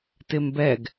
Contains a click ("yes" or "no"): no